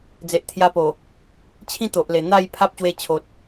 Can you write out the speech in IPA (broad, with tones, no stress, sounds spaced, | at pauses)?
d͡z e˨ ʔ t̪ʰ j a˧ p o˨˩ | t͡ɕʰ ĩ˦ t̪ o˨ ʔ l e˨˩ n̪ a˥˧ j pʰ a˦ p̚ ɕ w e˧ t͡ɕʰ o˨ t̚